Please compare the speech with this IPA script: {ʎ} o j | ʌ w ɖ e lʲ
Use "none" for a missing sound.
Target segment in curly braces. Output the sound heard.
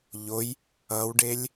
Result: ʎ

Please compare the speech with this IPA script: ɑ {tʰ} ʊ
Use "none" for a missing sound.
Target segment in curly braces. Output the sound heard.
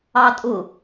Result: tʼ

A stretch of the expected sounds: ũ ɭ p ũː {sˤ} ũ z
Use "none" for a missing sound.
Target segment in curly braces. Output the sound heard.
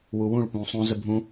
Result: sˤ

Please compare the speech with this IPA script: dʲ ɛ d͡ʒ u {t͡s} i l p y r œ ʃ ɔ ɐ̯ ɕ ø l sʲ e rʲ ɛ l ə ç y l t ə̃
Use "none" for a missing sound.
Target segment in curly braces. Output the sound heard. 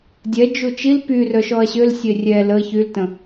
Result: t͡ʃ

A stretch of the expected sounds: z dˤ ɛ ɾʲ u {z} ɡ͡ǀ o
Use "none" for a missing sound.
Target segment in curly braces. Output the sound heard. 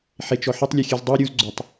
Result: z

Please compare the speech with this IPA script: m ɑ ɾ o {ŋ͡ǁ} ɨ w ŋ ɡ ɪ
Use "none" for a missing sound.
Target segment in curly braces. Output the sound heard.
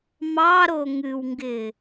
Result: ŋ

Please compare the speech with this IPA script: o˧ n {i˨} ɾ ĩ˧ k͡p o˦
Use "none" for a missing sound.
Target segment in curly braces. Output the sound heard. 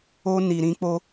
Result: i˨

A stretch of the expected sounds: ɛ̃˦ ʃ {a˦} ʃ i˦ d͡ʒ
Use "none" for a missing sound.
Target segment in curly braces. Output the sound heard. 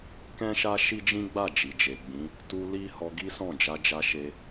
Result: a˦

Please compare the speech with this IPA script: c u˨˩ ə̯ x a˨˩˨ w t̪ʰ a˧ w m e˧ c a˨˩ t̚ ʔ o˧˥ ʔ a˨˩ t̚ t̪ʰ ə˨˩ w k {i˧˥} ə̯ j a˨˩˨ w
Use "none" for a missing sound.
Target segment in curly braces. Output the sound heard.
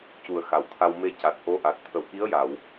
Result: i˧˥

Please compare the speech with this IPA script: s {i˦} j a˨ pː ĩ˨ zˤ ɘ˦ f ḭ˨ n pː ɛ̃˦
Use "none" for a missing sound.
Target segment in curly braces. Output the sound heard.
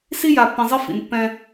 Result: i˦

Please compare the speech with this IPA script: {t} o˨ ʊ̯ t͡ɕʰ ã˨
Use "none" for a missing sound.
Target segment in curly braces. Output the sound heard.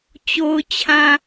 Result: t͡ɕ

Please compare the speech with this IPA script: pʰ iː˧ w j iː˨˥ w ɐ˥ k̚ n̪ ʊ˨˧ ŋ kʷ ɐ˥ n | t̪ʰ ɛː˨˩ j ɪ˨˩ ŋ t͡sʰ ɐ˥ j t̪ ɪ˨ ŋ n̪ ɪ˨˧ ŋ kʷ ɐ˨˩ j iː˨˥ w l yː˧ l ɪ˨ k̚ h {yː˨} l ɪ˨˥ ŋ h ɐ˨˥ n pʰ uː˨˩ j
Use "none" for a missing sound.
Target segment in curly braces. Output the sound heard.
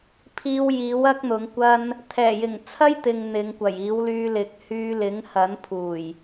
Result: yː˧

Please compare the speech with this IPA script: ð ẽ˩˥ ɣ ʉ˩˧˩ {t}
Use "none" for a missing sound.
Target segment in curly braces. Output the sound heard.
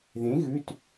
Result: t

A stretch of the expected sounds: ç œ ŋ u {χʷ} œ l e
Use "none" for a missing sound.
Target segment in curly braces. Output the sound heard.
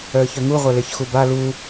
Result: ʁʷ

